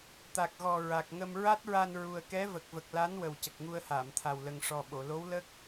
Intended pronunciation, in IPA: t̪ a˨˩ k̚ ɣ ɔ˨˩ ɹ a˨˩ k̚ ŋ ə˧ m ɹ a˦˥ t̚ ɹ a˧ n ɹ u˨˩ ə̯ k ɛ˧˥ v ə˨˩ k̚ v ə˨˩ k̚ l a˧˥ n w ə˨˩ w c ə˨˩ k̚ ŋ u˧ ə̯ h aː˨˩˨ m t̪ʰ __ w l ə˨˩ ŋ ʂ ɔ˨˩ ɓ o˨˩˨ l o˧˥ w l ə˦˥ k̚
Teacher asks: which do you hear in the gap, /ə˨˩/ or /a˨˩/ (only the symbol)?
a˨˩